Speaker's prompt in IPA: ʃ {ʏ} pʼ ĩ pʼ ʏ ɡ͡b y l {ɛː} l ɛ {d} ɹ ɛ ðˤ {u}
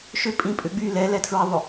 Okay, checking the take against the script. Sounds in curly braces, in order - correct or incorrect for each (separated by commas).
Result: correct, incorrect, incorrect, incorrect